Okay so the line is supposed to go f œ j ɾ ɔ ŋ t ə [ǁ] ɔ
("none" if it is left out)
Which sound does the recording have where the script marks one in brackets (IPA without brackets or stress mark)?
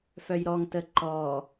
ǃ